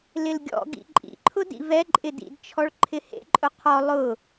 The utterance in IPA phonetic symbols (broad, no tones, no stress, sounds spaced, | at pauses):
l ɪ l ɡʲ ɔ̰ ɡ ḭ ǃʼ ḭ ǃʰ ʊ d ḭ v ɛ ǃʼ ɪ d ḭ d t͡ʃʰ ɔ ɭ ǃʰ ɪ h ḛ ǃʼ ʊ qʰ ɔ lˠ ʊ